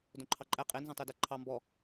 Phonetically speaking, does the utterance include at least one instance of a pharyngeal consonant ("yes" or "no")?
no